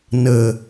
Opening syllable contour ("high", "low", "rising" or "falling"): low